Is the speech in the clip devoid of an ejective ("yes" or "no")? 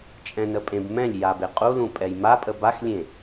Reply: no